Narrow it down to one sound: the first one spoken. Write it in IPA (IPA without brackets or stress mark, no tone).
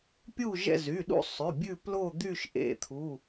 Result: pʲ